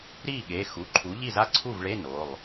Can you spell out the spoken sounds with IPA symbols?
ɾiː˥˩ɠe˩˧˩xu˩˧˩ǃʰu˩˥ ʎi˥˩za˥˩ ǀʰu˥˩vɭe˧˥˧ no˩˧˩lˠ

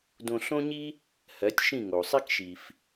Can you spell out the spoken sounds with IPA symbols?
dõ˧ɬõ˥ɲi˥ | hɜ˩˥tʲ ʃĩ˥˩ŋo˩sˤi˥kʃi˩f

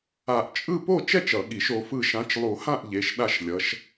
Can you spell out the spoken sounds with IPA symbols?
a˨˩˦ʔt͡ʃʼɯ˥˨ po˥˨t͡ʃɛ˥˨t͡ʃ ʌ˨˩˦ɠi˨˩˦ʃ o˨˦fɯ˥˨ ʃã˨˦t͡ʃlˠu˨˩˦hã˥˨ʔ ʎe˨˦ʃ ɗa˥˨ʃlʲʌ˨˦ʃ

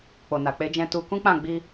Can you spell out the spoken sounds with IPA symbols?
k͡po˨na˨k͡pe˨˦d͡ʒɛ̃˧ tu˧kũ˦k͡pã˦˨ ɡ͡bi˧

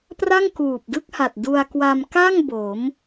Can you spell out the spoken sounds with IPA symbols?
pra˥˩ŋkuː˨˩p̚dɯ˥˩k̚ha˨˩t̚ du˧a̯kwa˧m ka˥˩ŋ bo˩˦m

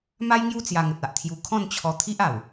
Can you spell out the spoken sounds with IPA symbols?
ma˦jŋju˥˧ t͡sja˧ŋə˨t̚a˨ʔt̪ʰju˧ kʰɔ̃˥˧nt͡ɕʰɔ˧t̪ʰi˦ʔa˨˩w

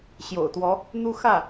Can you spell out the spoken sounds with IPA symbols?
ɕjo̰˨˩ʊ̯t̪wɔ˧˥ | n̪u˥xä˥˩

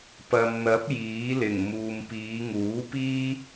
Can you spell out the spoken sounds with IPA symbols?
pɐ˨mn̪ɐ˨˥p̚ jiː˨˥lɪ˨˩ŋ muː˨mpiː˨˧ŋuː˨˥piː˥

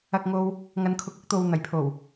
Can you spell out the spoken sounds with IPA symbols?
ɐ˧k̚ŋo˧w | ŋɐ˨nkʰʊ˨k̚ʊ˨˥k̚t̪o˨w n̪ɐ˨˩jpʰo˨˩w

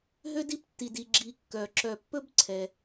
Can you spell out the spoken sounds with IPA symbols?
ɦø˥d i˥ptːi˨di˨ ɡ͡ǁi˨kːœ˩ ǁœ˨pːɵ˥b ǀʰɛ˩

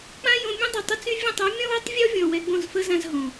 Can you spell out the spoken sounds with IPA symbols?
k͡pã˦jõ˧ mʲũ˦dˤu˨tˤə˦t͡sy˦ vʲõ˦˨tˤɔ˦ mʲɔ̃˦wɛ˦tˤ vʲɔ˦vʲɔ̃˨ wɛ˧ɡ͡bõ˦˨zfə˦zã˧z ɦõ˨

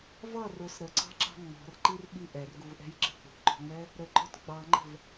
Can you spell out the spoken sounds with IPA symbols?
vʌ rʊs ɾəǀɑ̤ǁɑ̤ ŋ͡mɔ̤rǃirɓi ʔɛrɡuvʔɛ̤jǁə̤ k͡pṳǃɔ̤ŋ͡mɛ | ɾəɡ͡ǃɔt ɡ͡bɑŋ͡ǃə̤v

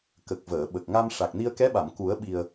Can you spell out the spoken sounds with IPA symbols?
kə˨˩k̚vəː˨˩˨ ɓə˨˩k̚ŋa˧m ʂa˨˩k̚ni˧ə̯kɛ˧˥ɓa˨˩˨m ku˨˩˦ə̯ɓi˨˩ə̯

